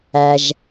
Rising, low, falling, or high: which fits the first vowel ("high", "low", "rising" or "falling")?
low